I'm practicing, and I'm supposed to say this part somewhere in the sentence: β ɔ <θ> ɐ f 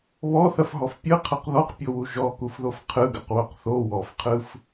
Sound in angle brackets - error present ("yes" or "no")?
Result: no